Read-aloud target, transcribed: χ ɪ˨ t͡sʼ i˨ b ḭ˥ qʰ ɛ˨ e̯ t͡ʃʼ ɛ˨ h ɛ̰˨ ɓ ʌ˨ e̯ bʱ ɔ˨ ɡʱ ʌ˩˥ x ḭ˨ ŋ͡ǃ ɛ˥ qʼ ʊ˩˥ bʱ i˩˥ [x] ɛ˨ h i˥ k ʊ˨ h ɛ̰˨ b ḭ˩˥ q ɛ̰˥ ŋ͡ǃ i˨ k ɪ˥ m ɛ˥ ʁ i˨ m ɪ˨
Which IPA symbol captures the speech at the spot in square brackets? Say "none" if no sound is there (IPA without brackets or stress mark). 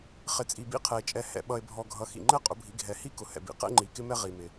ɡʱ